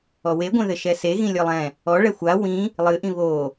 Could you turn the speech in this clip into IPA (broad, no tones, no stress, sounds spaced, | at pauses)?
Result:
ɔ w e ɡʷ ɛ̃ ð ɘ ʃ ɛ s e ɣ ĩ lʲ ɔ lˠ ɛ̃ | ɔ ɭ ɛ xʷ a w ĩ | lˠ ɨ ʔ ĩ β o